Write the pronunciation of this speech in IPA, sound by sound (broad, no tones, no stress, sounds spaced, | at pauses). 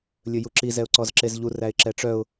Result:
lʲ ɵ j u ǁ i z ɛ ʊ̯ ǀ ɔ z ǁ e z ʎ u r æ ɪ̯ ǁ ɛ ʈ͡ʂ œ ʊ̯